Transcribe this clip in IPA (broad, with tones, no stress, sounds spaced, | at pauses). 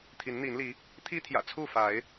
t̪ʰ i˨˦ n n̪ i˨˦ n l i˨˦ | t̪ʰ i˦ t̪ʰ j ä̰˨˩ t͡sʰ u˥˨ f a˨˦ ɪ̯